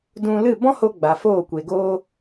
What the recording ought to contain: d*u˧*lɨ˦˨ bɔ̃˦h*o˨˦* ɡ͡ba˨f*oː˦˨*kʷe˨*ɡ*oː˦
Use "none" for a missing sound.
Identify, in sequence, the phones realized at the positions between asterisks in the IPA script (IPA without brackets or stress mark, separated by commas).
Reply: ũ˧, o˧, oː˦˨, ɡ